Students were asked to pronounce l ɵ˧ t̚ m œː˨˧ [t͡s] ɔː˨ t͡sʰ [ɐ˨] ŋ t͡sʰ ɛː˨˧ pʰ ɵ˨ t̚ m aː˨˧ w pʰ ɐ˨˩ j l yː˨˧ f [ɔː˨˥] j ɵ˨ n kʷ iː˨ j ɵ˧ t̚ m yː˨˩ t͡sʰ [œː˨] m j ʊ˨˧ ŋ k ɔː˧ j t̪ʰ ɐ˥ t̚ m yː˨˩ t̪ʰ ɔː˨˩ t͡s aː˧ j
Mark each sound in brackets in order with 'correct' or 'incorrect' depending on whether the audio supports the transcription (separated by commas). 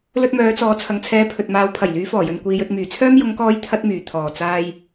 correct, correct, incorrect, incorrect